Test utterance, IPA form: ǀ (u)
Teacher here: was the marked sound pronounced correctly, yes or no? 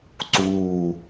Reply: no